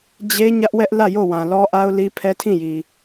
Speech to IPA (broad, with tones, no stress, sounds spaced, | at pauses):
d͡ʑ e˦ ɲ ä˦ ʔ w ɛ˦ ʔ l ä˦˨ j o˦˨ w ã˨ l ɔ˦ ʔ a˦ ʊ̯ l i˦ pʰ ɛ˦ tʰ ĩ˦˨ j i˨